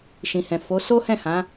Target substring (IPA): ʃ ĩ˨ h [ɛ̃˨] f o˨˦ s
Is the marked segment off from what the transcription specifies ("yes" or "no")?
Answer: no